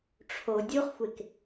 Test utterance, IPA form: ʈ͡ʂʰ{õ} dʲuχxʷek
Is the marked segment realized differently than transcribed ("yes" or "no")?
yes